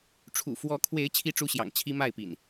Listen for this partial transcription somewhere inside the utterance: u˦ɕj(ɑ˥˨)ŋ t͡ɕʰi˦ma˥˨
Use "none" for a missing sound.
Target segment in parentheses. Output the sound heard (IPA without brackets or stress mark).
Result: ɑ̰˨˩